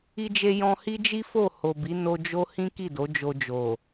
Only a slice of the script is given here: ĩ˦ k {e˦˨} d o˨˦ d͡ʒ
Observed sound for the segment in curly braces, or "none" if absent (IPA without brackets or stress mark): i˦˨